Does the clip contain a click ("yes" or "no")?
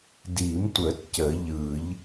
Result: no